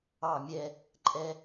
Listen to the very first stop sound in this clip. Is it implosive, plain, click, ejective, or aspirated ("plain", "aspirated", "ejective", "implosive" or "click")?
click